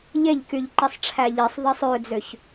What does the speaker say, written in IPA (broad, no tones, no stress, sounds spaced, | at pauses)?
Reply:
ʎ e ʎ k y ʎ ǃ i sˤ ʈ͡ʂʰ æ ʎ i sˤ ðˤ i sˤ ø d͡z ø ç